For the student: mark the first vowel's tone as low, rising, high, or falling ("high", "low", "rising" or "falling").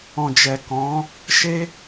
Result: low